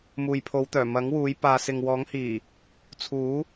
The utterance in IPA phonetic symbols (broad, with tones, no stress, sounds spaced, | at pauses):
m uː˨ j pʰ o˨˧ w t̪ œː˨˩ m ɐ˨˥ ŋ w uː˨˧ j p aː˨ s ɪ˨ ŋ w ɔː˨˥ ŋ h iː˨˩ | t͡sʰ uː˨˥